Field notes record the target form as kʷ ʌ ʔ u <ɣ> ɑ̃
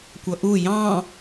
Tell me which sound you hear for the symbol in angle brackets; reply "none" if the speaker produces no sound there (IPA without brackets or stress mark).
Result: j